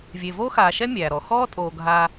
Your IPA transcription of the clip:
vʲe˨voː˥xaː˨ʃɛ˥ mʲæː˨ ɾɔ˨ xɔː˦tʼoː˨ ɡʱa˥

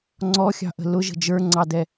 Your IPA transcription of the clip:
ŋ͡ǀɔxʲɑ̤ʔə̤ lʊʒə̤ d͡ʒə˞ŋ͡ǀɑdɛ

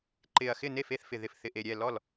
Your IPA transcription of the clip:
ǃɪ˨˩ɐ̯ xɪ˥˩ne˥˩fe˥˩θ fɪ˨˩ ðɪ˨˩f θɪ˨˩ʔe˨˩ɾʲɛ˥˩ lɔ˥˩l

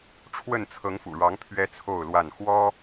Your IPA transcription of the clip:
ʈ͡ʂʰwə˥˨n t͡sʰɤ˨˦ŋfṵ˨˩ɻɑ˨˦ŋ pʰɥɛ˦t͡sʰo˥˨ʊ̯lwa˥˨n xwɔ˦

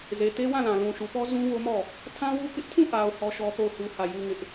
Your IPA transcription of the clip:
ze˨te˦wã˦˨lã˨ lũ˨ʃu˨pɔ˦ zũ˦wo˦mɔ˦˨ | tʰã˦wu˦kɪ˦ʔ tʰũ˦˨ʔa˨ʊ̯ hɔ˦ʃɔ˦θo˦˨ʊ̯hu˦ hä˦˨ ju˦ŋɪ˦ʔ

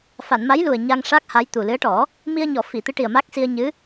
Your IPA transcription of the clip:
fa˨˩˨nma˧˥jlu˨˩ə̯ ɲa˧ŋʂa˦˥k̚ha˧˥j t̪u˨˩lɨ˧˥ə̯ʈɔ˨˩˦ | mi˧ə̯ɲɔ˨˩˨ fi˨˩˨t̪ɨ˧˥ʈi˨˩ə̯ ma˦˥k̚si˧ə̯ɲɨ˧˥

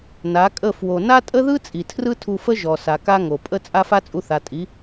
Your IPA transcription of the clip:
na˨˦kʼə˦˨ fwo˧ na˦tʼə˦ðɯ˦ t͡sʼi˨tʰrɯ˦tʰu˧fə˦ ʒɔ˨sa˨ ka˦ŋo˨ pʼə˦ t͡sʼa˦fa˦t͡sʼu˧ θa˨tʼi˨˦

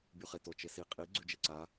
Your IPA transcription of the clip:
bʲuχeto t͡ʃesi qʼi ɡ͡ǀʉd͡ʒeǀa

